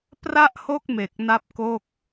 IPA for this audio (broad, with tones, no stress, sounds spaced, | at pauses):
p r a˥˩ ʔ h o˥˩ k̚ m e˨˩ k̚ n a˥˩ p̚ k o˥˩ k̚